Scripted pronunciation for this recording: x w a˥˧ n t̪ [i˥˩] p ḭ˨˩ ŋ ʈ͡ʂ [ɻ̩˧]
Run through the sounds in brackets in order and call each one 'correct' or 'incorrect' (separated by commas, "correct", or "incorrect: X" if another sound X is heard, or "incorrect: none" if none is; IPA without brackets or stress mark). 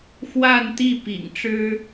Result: correct, incorrect: ɻ̩˥